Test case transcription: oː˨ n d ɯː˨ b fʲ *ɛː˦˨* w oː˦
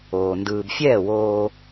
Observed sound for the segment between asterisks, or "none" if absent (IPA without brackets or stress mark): ɛː˦˨